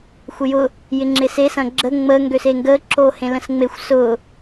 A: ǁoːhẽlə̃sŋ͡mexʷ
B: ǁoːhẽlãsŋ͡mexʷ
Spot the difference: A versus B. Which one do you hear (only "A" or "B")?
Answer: A